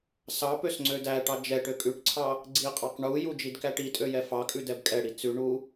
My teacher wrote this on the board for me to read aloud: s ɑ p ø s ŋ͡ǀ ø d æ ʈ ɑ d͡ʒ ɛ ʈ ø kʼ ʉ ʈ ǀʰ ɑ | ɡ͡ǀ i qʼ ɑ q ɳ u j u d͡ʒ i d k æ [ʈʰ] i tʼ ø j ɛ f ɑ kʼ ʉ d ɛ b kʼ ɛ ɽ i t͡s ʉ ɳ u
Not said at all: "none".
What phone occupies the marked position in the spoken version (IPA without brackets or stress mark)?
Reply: ʈ